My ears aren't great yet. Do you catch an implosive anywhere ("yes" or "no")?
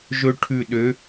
yes